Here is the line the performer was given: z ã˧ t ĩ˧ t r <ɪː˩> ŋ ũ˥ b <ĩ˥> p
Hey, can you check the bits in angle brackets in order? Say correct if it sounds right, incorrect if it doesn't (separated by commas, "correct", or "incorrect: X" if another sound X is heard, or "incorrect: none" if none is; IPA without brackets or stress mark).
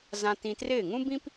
incorrect: ɪː˥˩, correct